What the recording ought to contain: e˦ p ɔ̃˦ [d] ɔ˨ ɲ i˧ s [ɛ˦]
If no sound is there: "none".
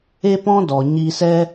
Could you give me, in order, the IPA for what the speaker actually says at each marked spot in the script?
d, ɛ˦

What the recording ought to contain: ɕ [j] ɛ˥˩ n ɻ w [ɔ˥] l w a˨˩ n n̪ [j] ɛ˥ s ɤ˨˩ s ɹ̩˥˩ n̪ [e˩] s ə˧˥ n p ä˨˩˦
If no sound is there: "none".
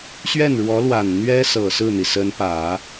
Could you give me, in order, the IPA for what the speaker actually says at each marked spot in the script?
ɥ, ɔ˧˥, ɥ, i˩

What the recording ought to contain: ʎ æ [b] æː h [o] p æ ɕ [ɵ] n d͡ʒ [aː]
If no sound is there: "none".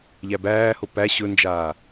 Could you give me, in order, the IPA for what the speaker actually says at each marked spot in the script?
b, o, ɵ, aː

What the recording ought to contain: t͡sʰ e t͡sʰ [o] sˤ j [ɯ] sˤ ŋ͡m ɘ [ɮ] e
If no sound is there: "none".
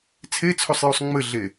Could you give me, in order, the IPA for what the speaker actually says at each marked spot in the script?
o, u, ɮ

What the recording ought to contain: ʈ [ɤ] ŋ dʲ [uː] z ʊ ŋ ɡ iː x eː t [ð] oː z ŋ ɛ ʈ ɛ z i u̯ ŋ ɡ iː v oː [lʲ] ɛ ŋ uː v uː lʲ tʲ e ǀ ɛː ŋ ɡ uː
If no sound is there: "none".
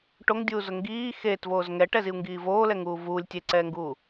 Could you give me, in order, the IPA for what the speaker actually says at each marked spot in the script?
o, uː, v, l

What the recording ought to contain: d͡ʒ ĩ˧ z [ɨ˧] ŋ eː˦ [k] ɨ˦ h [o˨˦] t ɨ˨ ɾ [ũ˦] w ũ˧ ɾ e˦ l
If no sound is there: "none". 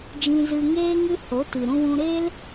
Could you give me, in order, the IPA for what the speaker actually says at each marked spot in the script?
ɨ˧, ŋ, o˨˦, ũ˧

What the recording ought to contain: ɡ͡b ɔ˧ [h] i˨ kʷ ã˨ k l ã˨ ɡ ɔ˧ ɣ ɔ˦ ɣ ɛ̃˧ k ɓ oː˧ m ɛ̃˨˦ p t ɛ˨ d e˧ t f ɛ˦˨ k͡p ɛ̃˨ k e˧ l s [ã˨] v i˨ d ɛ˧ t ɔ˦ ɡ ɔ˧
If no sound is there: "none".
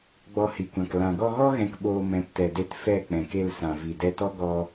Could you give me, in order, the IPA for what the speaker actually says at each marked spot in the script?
h, ã˨

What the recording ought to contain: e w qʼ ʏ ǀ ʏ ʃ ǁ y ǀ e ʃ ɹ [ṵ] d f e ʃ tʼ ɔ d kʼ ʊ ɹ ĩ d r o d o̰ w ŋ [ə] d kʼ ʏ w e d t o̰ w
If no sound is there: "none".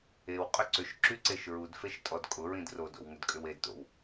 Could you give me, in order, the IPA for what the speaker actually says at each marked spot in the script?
u, ʏ

